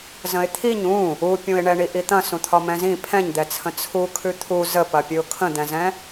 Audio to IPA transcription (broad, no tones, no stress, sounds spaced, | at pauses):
z ə̃ ɪ̯ t̪ʰ i ɲ ũ | u pʲ ũ ɪ̯ ɳ ɛ ɳ i ʔ i t̪ ɐ̃ s ũ t̪ʰ ɒ m ɛ̃ z ĩ pʰ ɛ̃ ɲ d̪ ɛ t͡sʰ ə̃ t͡sʰ u kʰ ʉ t̪ʰ u z ə p ɐ pʲ ʉ ʊ̯ kʰ ə̃ d̪ ɛ̃ z ɛ̃